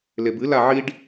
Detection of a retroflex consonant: present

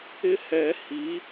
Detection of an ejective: absent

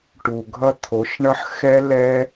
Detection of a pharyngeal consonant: present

